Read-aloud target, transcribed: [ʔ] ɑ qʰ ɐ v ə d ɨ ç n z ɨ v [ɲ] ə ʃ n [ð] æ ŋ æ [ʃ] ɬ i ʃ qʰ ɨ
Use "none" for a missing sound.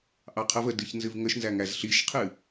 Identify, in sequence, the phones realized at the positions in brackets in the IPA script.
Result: ʔ, ŋ, z, z

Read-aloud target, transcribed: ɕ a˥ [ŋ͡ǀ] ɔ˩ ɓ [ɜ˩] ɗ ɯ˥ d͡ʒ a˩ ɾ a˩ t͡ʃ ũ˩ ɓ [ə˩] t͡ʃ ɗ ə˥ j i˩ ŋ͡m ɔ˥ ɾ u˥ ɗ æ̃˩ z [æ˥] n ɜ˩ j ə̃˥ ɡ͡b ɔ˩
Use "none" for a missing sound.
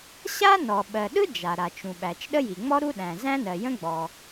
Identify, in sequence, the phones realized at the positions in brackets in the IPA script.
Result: n, ɜ˩, æ˩, æ̃˥

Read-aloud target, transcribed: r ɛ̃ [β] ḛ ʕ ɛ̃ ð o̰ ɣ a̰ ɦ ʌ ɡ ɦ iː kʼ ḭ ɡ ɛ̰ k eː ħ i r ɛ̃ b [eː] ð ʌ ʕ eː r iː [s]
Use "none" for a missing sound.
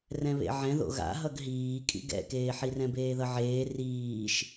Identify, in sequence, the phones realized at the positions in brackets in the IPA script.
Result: β, eː, ʃ

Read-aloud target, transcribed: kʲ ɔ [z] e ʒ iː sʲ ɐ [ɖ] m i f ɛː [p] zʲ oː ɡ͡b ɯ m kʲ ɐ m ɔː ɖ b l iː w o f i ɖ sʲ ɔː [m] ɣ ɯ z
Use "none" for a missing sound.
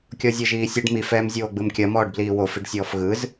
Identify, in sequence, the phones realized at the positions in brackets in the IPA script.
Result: zʲ, ɖ, m, f

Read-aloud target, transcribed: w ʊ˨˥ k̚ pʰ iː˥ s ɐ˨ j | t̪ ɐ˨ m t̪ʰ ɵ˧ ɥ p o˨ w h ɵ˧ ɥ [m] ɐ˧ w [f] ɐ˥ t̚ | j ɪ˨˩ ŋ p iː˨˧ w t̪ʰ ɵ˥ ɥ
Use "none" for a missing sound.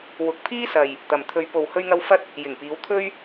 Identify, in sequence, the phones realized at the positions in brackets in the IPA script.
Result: ŋ, f

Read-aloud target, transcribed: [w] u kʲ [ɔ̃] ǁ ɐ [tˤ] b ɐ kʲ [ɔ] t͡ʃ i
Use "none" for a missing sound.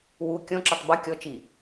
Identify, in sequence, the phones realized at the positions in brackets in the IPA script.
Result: w, ɔ̃, tˤ, ɔ

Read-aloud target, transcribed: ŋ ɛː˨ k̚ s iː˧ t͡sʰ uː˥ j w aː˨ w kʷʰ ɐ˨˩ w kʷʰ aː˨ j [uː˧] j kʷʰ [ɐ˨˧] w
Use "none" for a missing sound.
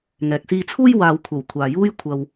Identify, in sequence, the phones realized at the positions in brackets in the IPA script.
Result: uː˥, ɐ˨

